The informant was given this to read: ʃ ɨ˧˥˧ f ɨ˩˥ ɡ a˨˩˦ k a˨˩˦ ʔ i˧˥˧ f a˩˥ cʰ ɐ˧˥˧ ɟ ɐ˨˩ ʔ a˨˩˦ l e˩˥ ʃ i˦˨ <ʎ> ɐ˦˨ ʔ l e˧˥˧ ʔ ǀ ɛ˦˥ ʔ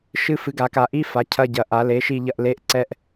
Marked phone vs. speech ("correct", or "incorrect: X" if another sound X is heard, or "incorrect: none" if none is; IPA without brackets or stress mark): correct